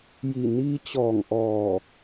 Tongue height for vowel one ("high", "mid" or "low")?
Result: high